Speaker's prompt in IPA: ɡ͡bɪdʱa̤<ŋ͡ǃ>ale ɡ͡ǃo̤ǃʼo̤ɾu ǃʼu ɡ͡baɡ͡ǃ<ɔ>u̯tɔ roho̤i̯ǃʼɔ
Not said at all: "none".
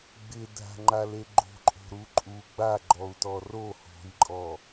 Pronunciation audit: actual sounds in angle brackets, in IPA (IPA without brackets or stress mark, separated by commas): ŋ͡ǃ, ɔ